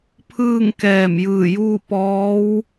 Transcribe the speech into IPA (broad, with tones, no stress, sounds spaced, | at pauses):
pʰ ɯː˥˨ ŋ k ɛː˧˩ m j ɯː˧˩ j uː˥˨ p ɔː˧˥ w